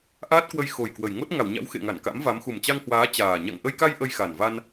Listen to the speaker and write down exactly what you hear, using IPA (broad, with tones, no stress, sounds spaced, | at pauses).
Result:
ʔ aː˦˥ t̚ k w ə˧ j x o˨˩ j k w ə˨˩ j ŋ o˦˥ t̚ ŋ a˧˩ w ɲ a̰˧˥ w x ḛ˧˨ ŋ a˧˩ n k a̰˧˥ m v a˨˦ m x u˨˩ m t͡ɕ a˧ ŋ h w aː˨˦ t͡ɕ aː˨˩ ɲ a̰˧˨ ŋ ʔ ə˧ j k a˧ j ʔ ə˧ j x a˨˩ n v a˧ n